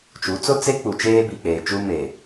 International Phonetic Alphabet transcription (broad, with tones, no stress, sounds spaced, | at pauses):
t͡ʃ u˨˦ t͡s ʊ˦ t͡s e˦ k͡p u˨ t͡ʃ eː˦ b i˨ k͡p eː˨ t͡ʃ u˦ m e˨